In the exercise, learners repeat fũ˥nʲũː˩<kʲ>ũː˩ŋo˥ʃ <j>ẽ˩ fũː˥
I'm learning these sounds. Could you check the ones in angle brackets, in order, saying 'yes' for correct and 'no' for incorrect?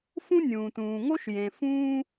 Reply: no, yes

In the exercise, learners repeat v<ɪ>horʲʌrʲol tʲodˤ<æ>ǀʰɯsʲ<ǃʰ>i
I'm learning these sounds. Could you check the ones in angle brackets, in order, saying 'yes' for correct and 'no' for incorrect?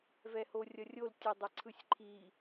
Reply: no, no, yes

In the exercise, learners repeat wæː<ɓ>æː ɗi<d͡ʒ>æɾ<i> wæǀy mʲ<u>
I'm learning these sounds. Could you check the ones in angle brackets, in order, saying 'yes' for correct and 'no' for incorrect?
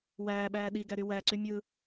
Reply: yes, no, no, no

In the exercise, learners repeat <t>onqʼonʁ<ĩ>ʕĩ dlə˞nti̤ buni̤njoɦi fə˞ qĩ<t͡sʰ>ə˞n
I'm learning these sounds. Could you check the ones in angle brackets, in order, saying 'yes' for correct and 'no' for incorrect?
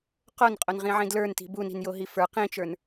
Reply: no, yes, no

